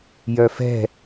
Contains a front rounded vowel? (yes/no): yes